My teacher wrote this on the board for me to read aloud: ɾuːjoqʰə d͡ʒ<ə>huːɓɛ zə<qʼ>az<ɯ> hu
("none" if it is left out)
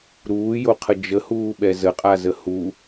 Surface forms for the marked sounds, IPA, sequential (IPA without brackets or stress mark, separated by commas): ə, qʼ, ə